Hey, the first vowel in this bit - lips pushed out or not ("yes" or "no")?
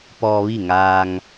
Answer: yes